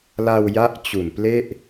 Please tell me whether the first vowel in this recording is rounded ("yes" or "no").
no